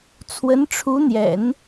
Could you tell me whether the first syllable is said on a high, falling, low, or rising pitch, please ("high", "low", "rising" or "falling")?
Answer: rising